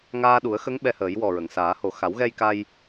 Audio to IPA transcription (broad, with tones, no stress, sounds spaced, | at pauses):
ŋ aː˧ ɗ u˨˩˦ ə̯ x ə˧˥ ŋ ɓ ɛ˧ h əː˨˩˦ j w ɔ˨˩ ɹ ə˨˩˨ ŋ s aː˨˩˦ h o˨˩ x a˨˩˦ w ɣ ɛ˧ j k a˧ j